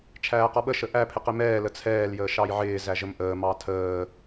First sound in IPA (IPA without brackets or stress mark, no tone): t͡ʃʰ